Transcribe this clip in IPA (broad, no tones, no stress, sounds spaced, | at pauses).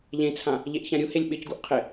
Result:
ʎ ẽ t͡sʰ ã | ʎ e ʔ ç ã ɾʲ u h e lʲ ɓ ɪ c ɡ u ʔ qʰ ɪ